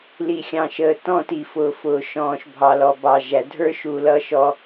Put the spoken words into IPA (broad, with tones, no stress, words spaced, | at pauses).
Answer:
li˨xʲɑ̃˨ʃəː˨ tɔ̃˦˨ti˨fʊː˨ fʊː˨ʃɔ̃ː˨ʃbʱɑ˨lɔ˨ bɑ˨ʒæ˨dʱə˞˦ ʃu˨ lʌ˦ʃɔ˦